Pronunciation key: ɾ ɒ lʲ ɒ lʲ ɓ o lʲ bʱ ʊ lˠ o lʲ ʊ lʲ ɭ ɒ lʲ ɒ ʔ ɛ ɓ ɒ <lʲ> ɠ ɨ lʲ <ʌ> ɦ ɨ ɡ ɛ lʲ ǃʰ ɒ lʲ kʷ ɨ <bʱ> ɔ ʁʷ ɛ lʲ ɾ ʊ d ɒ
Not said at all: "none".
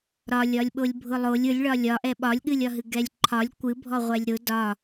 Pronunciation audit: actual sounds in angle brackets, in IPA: lʲ, ɒ, bʱ

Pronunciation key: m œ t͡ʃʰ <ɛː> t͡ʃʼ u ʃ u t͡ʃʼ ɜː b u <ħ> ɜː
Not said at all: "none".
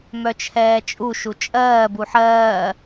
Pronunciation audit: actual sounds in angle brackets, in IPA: ɛː, ħ

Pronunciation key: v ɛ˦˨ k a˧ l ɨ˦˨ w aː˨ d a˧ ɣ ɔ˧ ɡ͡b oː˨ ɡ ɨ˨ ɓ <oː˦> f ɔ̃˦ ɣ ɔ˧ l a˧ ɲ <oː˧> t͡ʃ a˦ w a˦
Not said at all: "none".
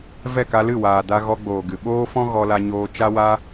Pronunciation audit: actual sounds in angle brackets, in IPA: oː˦, oː˧

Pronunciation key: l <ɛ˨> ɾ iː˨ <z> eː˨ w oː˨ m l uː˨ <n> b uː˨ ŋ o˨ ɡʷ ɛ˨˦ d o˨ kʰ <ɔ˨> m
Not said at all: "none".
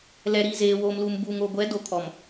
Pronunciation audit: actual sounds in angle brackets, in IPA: ɛ˨, z, m, ɔ˨

